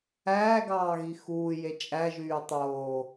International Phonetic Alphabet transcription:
æː ɡ ɑː ɣ i x uː j e t͡ʃʼ æ ʒ yː tˤ oː

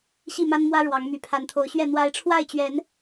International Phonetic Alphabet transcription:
ɕ i˥˨ m a˦ n m w ä˦ ɻ w ɑ˨˦ ŋ m y˨˩ pʰ a˨˦ n t̪ʰ o˨˦ ʊ̯ ɕ ɥ ɛ˥˨ n̪ w a˨˦ ɪ̯ ʈ͡ʂʰ w a˥˨ ɪ̯ t͡ɕ ɥ ɛ˨˦ n

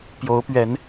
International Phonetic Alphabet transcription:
p j o˨˦ ʊ̯ p ɥ ɛ˨˦ n

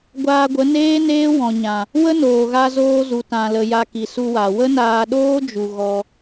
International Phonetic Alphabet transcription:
ɡʷ aː˧ ɡʷ ə˨˦ n eː˦ n eː˦ w ɔ̃˨ ɲ ã˨ | w ə˦ n oː˨ ɣ a˧ z oː˧ z u˨ t ã˨ l ə˨ j a˧ k i˨ s u˧ w a˨ w ə˦ n aː˧ ɗ oː˦ d͡ʒ u˨ ɣ ɔ˧

